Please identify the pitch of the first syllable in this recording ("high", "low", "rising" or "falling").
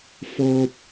high